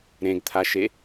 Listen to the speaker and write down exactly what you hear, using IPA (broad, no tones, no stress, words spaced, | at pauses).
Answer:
ɾẽɡt̪ʰaʃe